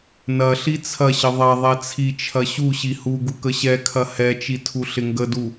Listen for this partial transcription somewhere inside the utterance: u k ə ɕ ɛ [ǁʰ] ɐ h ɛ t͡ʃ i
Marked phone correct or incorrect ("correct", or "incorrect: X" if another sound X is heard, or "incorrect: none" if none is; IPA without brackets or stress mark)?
incorrect: kʰ